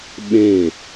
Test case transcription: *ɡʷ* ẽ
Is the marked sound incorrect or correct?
incorrect